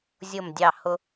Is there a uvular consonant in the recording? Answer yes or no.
no